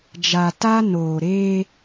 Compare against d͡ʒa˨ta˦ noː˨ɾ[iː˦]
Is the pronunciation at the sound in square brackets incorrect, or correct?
incorrect